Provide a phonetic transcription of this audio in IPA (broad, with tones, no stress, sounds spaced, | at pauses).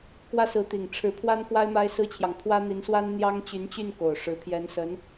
k w ä˥ s ɹ̩˧˥ t̪ i˨˩ ŋ ʈ͡ʂʰ ɻ̩˧˥ pʰ w a˥ n k w a˥ ɪ̯ m a˥ ɪ̯ s ɹ̩˥ t͡ɕʰ j ɑ˨ ŋ pʰ w ä˥ n̪ i˧˥ n s w a˥ n n̪ j ɑ˥ ŋ t͡ɕ y˧˥ n t͡ɕ y˥˩ n k o˨˩ ʊ̯ ʂ ɻ̩˧˥ pʰ j ɛ˧˥ n s ə˧˥ n